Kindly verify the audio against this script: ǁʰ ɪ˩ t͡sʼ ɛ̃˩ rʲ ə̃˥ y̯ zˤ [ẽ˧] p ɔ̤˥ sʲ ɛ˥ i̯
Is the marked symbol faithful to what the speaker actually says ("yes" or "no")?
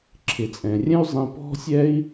yes